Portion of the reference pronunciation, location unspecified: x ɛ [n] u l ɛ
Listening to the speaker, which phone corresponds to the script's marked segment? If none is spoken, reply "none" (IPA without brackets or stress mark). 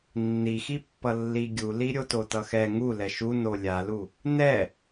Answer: ŋ